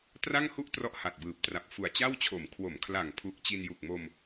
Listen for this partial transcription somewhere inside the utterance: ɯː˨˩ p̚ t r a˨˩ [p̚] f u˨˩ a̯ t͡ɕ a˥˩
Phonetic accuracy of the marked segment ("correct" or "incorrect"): correct